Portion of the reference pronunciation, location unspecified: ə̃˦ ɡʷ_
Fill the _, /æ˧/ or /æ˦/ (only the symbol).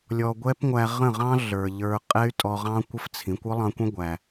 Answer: æ˧